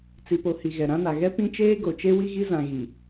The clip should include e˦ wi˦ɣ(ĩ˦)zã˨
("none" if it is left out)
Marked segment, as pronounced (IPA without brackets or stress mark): i˦